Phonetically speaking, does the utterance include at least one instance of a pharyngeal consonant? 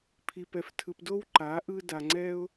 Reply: no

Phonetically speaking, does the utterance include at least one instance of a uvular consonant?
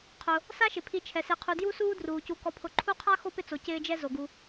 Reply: yes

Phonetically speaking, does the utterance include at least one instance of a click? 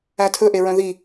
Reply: no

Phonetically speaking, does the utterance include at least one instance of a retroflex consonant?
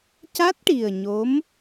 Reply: yes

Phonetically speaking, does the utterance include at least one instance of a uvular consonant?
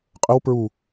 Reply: yes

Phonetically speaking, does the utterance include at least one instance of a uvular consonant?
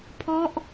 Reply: no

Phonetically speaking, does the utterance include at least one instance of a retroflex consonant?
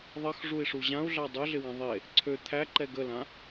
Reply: yes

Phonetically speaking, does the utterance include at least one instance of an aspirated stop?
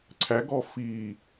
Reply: yes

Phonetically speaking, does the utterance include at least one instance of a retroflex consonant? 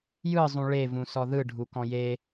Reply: yes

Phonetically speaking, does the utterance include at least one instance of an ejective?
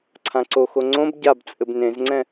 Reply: yes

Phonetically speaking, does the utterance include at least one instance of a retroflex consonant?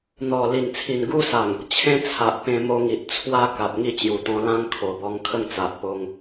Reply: no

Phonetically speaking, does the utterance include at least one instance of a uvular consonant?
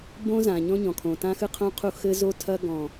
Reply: yes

